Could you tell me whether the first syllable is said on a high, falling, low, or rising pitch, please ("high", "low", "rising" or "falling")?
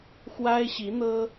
high